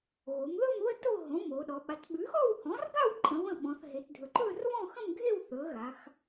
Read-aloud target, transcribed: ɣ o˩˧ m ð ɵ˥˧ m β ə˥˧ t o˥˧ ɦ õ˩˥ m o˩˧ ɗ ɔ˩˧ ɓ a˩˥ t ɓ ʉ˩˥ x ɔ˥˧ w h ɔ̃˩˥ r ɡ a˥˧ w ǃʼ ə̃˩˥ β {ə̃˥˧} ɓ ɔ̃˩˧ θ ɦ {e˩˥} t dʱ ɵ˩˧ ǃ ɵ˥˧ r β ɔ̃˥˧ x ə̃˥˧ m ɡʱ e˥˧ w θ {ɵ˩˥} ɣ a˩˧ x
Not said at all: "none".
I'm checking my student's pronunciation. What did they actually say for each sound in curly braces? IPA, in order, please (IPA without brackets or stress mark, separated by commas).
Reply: ə̃˥˧, e˩˧, ɵ˩˥